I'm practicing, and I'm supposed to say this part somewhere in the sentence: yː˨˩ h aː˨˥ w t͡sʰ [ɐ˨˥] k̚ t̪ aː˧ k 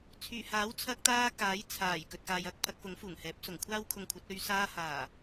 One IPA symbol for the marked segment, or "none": ɐ˧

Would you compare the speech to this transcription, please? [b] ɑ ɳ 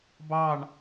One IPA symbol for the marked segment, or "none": b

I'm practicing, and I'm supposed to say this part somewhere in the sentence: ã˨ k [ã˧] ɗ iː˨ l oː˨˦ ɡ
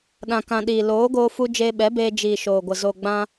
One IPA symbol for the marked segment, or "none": ã˨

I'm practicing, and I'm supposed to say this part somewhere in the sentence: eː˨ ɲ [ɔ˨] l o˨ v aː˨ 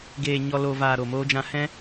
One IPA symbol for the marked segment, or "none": ɔ˨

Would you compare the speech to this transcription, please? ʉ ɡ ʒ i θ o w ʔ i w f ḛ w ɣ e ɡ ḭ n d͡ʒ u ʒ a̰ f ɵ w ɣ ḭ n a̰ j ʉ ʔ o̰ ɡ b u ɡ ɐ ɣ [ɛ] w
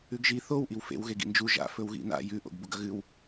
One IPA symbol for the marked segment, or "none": ɨ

